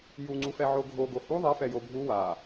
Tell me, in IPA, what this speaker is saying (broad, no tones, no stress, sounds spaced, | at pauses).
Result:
j u ŋ͡ǀ u f ɛ ʕ o ɡʱ o ɡ o h u ðˤ ɛ f ɛ j o bʱ u w a